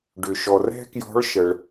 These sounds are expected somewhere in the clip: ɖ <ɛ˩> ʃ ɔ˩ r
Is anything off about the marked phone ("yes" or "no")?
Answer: yes